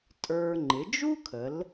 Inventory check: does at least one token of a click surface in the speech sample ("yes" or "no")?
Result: yes